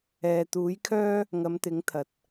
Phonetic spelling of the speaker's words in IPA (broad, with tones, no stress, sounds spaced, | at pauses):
ɛː˨ t̪ uː˨˥ j kʰ œː˥ | ŋ ɐ˨˧ m t̪ ɪ˨˥ ŋ t̪ʰ ɐ˨ t̚